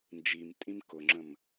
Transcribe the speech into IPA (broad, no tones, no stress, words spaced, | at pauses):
nd͡ʒimtʼĩm kʊŋ͡ǁə̃m